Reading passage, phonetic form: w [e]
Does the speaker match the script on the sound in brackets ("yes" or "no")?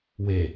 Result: yes